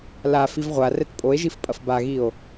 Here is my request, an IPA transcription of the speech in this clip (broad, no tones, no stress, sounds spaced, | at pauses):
l a f i v ʁʷ a r ɛ t pʼ o e̯ ʒ i f pʼ ɐ f b a ɣ i o̯